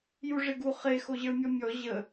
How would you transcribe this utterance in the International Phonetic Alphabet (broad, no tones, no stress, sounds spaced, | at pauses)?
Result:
j u ʐ e ɡ u χ e x o ʑ ə˞ mʲ ɔ mʲ ɔ ʑ ə